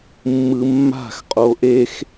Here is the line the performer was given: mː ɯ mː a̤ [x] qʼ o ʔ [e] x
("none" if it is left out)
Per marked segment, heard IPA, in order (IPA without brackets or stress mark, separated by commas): x, e